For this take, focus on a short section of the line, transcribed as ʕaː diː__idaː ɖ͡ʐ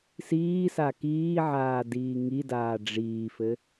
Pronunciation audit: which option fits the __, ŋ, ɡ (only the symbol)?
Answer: ŋ